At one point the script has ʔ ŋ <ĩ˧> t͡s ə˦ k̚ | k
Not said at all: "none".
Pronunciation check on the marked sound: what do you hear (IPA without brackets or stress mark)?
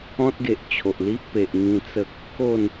ĩ˧